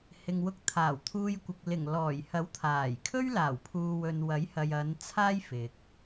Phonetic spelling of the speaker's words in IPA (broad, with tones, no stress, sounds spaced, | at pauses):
h ɪ˨ ŋ w ʊ˧ k̚ t̪ʰ aː˨˩ w t̪ʰ uː˧ j kʷ ɪ˨ k̚ l ɪ˨˩ ŋ l ɔː˨˩ j h ɐ˨˥ w t̪ʰ aː˨˩ j kʰ ɵ˥ ɥ l aː˨˩ w pʰ uː˨ w ɵ˨ n w ɐ˨˥ j h ɐ˨ j ɐ˨˧ n t͡sʰ aː˥ j f ɪ˨ k̚